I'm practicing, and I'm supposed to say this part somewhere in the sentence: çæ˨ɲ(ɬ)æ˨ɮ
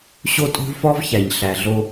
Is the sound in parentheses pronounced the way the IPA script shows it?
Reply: yes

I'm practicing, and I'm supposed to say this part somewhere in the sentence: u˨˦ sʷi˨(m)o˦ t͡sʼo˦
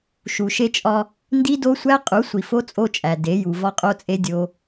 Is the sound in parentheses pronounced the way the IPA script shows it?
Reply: no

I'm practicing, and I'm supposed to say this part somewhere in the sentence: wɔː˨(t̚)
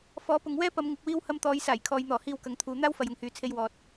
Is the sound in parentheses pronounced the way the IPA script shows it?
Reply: yes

